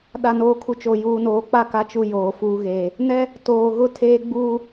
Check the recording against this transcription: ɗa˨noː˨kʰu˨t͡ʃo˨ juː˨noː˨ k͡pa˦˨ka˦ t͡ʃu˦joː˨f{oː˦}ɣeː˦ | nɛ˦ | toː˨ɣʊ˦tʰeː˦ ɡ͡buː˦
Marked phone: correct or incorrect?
incorrect